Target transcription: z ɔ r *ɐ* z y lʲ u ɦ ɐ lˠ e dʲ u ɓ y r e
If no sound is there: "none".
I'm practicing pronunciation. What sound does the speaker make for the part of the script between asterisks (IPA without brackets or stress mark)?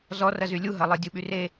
ɐ